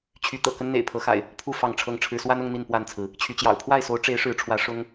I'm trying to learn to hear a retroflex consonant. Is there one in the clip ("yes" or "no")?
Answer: yes